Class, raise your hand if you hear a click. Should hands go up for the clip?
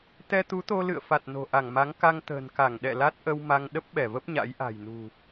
no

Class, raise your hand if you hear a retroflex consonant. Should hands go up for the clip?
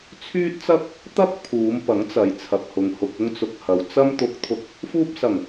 no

